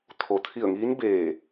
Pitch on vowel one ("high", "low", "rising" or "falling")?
low